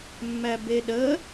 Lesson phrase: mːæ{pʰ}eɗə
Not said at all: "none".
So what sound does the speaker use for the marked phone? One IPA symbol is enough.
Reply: b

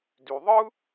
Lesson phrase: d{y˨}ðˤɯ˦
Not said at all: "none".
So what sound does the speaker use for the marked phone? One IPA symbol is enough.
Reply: y˨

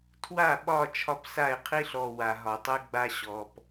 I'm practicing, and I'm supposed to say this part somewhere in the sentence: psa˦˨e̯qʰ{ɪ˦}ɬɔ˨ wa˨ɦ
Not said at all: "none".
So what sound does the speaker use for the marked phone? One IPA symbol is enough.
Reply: i˦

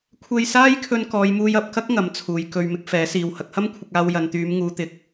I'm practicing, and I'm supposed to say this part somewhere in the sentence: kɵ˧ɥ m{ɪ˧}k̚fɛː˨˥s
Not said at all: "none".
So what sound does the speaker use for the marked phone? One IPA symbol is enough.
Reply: ɪ˧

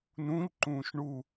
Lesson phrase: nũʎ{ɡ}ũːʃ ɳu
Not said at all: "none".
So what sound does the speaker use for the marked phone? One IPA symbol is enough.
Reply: ǃ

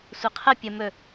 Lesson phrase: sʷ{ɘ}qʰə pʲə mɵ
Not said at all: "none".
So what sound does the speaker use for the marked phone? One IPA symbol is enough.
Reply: ɘ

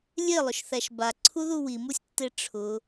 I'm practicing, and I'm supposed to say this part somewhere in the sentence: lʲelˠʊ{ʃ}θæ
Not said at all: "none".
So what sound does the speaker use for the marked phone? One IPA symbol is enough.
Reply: ʃ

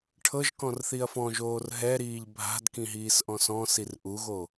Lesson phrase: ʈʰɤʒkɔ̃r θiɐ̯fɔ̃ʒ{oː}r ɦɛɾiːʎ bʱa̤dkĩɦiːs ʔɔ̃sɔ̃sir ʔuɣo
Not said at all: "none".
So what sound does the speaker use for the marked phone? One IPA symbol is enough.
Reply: oː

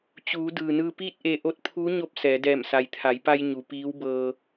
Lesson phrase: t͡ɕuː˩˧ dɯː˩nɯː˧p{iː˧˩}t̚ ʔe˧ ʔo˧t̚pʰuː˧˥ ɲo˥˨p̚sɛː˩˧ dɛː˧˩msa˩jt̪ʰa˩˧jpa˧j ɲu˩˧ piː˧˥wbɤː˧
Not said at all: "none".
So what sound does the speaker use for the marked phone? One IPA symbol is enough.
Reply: iː˥˨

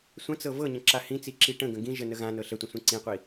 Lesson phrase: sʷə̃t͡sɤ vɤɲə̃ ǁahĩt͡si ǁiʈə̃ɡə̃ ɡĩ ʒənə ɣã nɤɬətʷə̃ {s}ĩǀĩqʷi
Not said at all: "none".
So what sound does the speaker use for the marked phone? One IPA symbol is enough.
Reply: sʷ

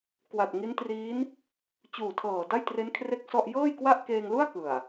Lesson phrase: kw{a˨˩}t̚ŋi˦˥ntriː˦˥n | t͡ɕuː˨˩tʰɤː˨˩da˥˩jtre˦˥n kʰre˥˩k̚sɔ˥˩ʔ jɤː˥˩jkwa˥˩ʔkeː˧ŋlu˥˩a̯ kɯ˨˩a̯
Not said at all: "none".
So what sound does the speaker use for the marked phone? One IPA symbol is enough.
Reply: a˨˩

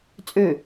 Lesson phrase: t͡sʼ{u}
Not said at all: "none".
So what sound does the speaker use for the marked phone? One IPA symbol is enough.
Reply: ø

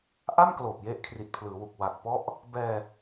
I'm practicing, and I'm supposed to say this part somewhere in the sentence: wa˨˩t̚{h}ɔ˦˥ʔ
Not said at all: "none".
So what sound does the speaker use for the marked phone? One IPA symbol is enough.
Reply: p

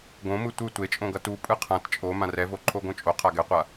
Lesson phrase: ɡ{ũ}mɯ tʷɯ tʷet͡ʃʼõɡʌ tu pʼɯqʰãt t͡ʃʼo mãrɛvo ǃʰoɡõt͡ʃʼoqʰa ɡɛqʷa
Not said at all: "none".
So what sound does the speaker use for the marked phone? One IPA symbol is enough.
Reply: õ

